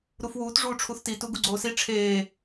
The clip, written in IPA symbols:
ɾufwuːt ʐuːʈ͡ʂʰuθtitu ɡuɡ͡ǀoːsi ʈ͡ʂʰeː

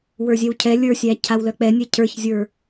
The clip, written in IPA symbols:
wə˞zʲɛwcʰɛ lʲə˞sʲæ cʰawlœk͡pɛnʲɛ cʰə˞çzʲə˞

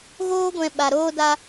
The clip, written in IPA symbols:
ɣoː˦ɡʷɛ̃˧ ɓa˧ɾoː˦da˦

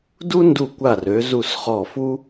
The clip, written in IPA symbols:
du˥ ndu˧˩kʷa˧˩ rø˩˧zu˧˩s χɔ˧˩fu˥

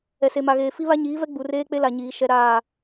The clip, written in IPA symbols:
ɛ˨se˨ma˨ɣeː˨ fi˦βa˦ɲiː˨˦vɛ˦ ɡ͡bu˨reː˦k͡pe˦la˨ ɲiː˨˦ ʃɛ˦ɾaː˦˨

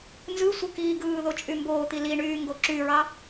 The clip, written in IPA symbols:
nzɯsʷɯ kiːɡɯːðo t͡ʃʼymboːt̪i liɳyː ŋɡoǁyɹɑ

